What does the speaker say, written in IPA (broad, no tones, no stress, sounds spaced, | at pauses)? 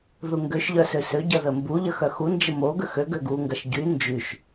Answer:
ð u ŋ ɡ ø ʃ ʎ œ s ø s ø ɟ ɐ ð ə m b u ʎ ə x œ x u n d͡ʒ ə m o ɡ ə x ø ɡ ø ɡ u ŋ ɡ ɐ ʃ ɟ y n d͡ʒ y ʃ